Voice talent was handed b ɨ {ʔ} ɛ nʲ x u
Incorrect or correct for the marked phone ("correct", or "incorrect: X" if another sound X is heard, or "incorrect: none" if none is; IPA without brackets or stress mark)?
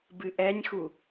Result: correct